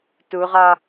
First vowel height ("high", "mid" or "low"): high